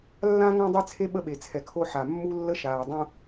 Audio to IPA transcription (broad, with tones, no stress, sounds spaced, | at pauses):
lː ã˦ ŋ ã˦ dˤ ɛ˦ t͡sʰ e˦ ɓ ə˦ ɓ e˨ t͡sʰ ɛ˨ kʰ o˦ ħ a˨ mː u˦ lː ə˦ ʃ aː˨ dˤ ũ˦